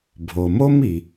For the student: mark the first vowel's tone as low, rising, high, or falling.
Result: low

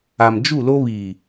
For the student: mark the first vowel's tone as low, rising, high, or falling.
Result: low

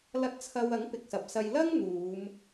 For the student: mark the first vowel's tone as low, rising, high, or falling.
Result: rising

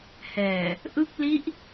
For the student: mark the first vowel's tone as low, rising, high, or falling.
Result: low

